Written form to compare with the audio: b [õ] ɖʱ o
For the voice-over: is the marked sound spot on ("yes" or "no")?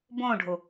yes